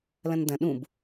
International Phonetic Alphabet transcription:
lɐ̃ndɐ̃ ɗũb

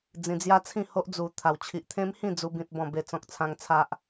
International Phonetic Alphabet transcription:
d͡zĩ˧d͡zja˦t͡sʰĩ˥˧ho˦ʔ d͡zu˧t̪ʰa˧w t͡ɕʰi˦ʔ t̪ʰẽ˦mhĩ˥˧ d͡zu˦bĩ˦t̚bɔ̃˥˧ be˥˧t͡sɔ̃˦k̚t͡sʰã˦ŋ t͡sʰa˦ʔ

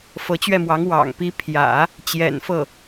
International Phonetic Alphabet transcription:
fɤ˧˥t͡ɕɥɛ˥˩mwɑ˧˥ŋ wɑ̰˨˩ŋpi˧˥pʰjä̰˨˩˦ | t͡ɕjɛ̰˨˩nfɤ˥˩

